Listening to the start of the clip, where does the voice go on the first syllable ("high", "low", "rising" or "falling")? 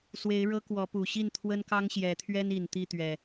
rising